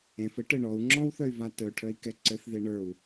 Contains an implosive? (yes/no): no